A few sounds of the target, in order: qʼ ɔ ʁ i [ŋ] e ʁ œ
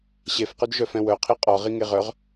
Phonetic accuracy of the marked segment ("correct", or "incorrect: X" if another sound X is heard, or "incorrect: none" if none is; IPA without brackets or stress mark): correct